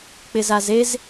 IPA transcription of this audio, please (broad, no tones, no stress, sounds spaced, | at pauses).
k͡p ɪ z a z e z